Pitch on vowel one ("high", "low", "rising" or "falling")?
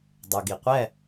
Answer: low